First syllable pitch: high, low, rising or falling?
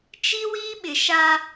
high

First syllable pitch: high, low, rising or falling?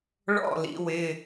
falling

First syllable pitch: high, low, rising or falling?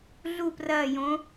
falling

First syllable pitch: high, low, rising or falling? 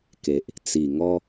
low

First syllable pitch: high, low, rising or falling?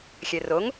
low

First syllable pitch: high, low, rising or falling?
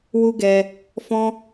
high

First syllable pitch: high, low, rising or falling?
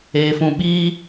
low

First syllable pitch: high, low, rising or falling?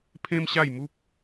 high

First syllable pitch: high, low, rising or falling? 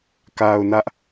low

